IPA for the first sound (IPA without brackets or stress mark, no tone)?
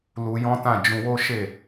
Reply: l